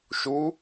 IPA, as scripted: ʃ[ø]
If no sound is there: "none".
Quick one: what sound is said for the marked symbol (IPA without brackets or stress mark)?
u